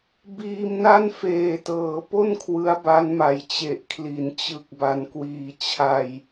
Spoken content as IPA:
biː˧mna˥˩nfeː˨˩tɤː˩˦ po˥˩n kʰwɯ˦˥a̯ba˦˥nma˨˩j t͡ɕe˨˩ʔkʰli˩˦n t͡ɕɯ˨˩k̚ ba˧nkwiː˧ t͡ɕʰa˧j

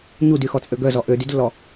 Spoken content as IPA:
ɲudyxɔt͡sʼø ɡœzɔ ʔødydlːɔ

